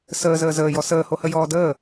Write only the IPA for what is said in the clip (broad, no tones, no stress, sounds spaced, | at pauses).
s əː z əː z əː j ɔ s əː h o h ə j ɔː d əː